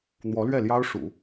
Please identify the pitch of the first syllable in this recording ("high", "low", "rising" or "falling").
rising